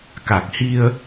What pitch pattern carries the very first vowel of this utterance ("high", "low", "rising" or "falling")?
low